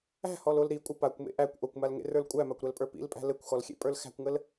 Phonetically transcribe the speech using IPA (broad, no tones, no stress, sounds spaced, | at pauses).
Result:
æ̤ h ɔ l o l ɾ i kʷʼ ɘ p a kʷ m ḛ ʔ æ kʷ ʔ o kʷ m a l ŋ ḛ r ə˞ l kʷʼ æ m a kʷ ɾ æ l pʼ ə˞ p ḭ l pʼ æ̤ l ɘ kʷ x ɔ l xʲ ḛ pʼ ə˞ l x æ̤ kʷ ŋ ə l